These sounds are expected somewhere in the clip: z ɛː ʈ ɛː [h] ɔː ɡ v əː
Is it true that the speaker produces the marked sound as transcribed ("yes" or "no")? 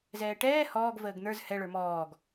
yes